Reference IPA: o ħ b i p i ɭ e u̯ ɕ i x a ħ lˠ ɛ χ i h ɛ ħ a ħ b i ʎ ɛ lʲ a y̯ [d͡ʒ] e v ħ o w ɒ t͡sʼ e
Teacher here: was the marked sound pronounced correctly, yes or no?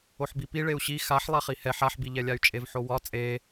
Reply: no